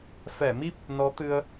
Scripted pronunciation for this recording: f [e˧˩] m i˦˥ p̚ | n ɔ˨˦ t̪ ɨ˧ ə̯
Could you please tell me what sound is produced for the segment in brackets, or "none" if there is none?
ɛ˧˩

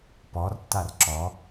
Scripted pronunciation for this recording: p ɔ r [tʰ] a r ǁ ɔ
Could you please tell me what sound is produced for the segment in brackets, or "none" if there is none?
tː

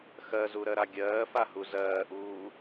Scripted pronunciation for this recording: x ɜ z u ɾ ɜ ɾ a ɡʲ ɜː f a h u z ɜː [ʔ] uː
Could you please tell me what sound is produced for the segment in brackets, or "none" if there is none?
ʔ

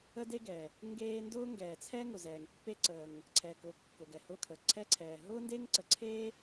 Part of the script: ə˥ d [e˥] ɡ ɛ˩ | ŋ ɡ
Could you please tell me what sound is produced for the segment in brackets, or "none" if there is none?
e˥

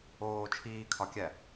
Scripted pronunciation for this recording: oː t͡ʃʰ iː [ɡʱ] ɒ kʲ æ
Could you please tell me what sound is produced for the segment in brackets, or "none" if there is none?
kʰ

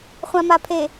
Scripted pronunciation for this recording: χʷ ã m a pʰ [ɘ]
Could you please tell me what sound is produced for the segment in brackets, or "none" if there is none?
e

